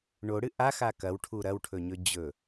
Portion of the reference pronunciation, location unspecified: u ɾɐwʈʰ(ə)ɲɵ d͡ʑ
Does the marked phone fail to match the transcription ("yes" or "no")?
yes